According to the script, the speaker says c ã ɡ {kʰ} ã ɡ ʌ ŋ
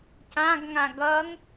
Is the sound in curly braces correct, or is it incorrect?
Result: incorrect: ŋ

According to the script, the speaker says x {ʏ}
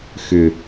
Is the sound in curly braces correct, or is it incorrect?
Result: correct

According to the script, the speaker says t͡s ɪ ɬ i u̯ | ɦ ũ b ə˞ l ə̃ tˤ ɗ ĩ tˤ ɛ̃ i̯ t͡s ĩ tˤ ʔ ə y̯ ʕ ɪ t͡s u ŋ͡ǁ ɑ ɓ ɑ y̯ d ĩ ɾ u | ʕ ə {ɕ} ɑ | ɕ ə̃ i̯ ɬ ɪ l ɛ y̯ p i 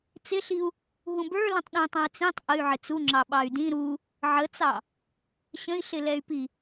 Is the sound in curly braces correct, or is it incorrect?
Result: incorrect: t͡s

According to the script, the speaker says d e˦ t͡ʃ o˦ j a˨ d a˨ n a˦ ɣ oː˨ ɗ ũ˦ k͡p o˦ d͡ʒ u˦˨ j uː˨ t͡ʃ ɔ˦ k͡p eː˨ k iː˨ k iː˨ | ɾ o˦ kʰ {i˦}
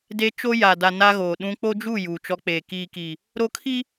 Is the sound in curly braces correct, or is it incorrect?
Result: correct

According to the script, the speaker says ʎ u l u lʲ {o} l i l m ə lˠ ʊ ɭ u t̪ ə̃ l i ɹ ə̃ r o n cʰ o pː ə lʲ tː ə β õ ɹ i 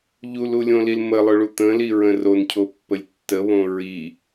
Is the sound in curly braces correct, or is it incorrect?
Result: incorrect: õ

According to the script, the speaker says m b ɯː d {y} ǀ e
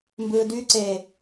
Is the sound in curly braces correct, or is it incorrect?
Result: correct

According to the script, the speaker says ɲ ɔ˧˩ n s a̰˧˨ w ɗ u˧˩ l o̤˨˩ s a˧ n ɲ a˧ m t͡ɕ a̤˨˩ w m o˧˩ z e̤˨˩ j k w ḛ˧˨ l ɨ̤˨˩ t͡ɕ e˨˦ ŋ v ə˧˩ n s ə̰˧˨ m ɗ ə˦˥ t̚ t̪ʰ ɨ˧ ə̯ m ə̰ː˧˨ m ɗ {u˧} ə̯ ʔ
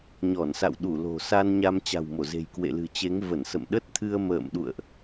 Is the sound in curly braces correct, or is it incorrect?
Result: incorrect: ṵ˧˨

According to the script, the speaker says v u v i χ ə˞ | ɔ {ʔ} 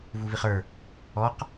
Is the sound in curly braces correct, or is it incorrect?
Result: incorrect: q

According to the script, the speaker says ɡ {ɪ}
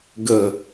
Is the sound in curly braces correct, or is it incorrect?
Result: incorrect: ə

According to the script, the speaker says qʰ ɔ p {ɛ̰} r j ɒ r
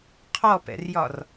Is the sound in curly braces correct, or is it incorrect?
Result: correct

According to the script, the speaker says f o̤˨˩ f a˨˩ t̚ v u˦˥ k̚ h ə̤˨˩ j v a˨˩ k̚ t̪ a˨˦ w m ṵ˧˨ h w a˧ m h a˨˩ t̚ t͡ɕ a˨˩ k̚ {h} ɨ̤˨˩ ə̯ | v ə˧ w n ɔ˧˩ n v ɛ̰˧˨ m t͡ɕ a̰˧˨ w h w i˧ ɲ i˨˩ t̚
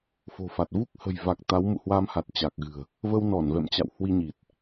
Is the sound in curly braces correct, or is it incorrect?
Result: incorrect: ɣ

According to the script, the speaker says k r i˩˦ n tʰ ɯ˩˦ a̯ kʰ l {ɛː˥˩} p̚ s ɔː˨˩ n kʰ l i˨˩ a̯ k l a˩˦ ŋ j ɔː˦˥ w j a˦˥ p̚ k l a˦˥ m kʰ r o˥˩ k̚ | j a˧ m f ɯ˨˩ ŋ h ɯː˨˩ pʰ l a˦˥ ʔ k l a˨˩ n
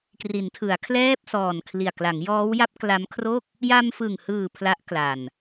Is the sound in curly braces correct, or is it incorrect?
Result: correct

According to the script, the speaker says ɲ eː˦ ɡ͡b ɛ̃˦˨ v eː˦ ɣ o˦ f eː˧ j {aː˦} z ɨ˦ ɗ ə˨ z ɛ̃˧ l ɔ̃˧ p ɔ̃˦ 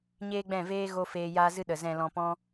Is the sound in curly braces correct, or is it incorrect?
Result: correct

